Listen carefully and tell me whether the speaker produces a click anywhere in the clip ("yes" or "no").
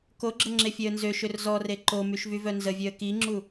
yes